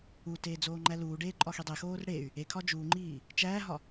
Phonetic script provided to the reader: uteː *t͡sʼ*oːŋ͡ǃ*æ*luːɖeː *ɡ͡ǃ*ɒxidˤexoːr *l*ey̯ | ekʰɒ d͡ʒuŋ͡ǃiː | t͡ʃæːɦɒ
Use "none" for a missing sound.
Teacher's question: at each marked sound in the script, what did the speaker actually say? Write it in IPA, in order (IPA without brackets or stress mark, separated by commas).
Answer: d͡z, æ, ǃʼ, ɽ